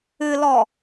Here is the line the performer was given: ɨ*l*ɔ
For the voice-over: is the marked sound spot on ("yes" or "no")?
yes